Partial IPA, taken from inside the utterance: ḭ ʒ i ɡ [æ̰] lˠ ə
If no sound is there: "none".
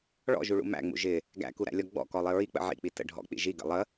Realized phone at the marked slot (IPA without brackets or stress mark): ə̰